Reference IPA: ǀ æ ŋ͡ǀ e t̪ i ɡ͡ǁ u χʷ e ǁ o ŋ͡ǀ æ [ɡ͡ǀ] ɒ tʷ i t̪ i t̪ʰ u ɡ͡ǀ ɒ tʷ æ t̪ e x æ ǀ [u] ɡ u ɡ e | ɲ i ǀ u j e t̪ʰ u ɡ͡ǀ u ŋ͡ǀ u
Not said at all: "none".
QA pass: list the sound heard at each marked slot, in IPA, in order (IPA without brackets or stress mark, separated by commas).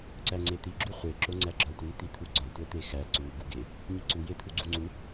ɡ͡ǁ, u